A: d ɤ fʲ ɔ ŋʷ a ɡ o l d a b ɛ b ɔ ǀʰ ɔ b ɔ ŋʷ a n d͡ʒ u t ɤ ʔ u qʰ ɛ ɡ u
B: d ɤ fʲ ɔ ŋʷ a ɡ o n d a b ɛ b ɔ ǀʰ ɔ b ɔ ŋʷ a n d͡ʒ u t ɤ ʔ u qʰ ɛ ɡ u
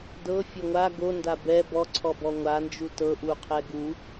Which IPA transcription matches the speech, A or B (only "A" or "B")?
B